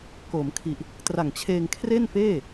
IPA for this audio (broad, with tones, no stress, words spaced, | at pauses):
koː˩˦mkʰi˨˩ʔ | tra˨˩ŋt͡ɕʰeː˧ŋ kʰre˥˩nfeː˥˩